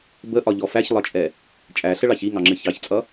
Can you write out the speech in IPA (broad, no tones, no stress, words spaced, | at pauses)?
bəʔɒʎɔ fæçlˠʌt͡ʃʼɛ | t͡ʃʼæɬəɭɑç iŋɑŋ͡ǁɪ çɑçt͡sʼʌ